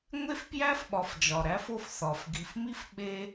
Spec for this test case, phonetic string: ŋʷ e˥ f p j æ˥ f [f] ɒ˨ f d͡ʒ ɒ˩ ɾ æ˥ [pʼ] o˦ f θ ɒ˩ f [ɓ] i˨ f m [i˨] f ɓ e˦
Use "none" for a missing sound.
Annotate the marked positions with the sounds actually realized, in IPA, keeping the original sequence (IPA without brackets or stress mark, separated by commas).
ɓ, f, ɡ, i˥